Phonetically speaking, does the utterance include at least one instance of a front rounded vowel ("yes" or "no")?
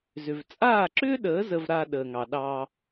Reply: yes